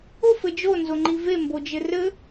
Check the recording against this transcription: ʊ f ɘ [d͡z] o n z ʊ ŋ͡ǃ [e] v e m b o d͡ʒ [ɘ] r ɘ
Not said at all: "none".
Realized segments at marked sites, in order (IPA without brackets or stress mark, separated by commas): d͡ʒ, i, ɘ